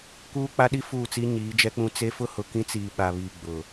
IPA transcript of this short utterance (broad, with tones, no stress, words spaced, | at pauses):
kuː˦k͡pa˦ɗi˦ fuː˦˨t͡si˦ ɲiː˨˦d͡ʒɛ˦k͡pũ˦ t͡se˦ fʊ˦hʊ˨kĩ˦t͡siː˨ ɓa˨βiː˨ ɡ͡bʊ˨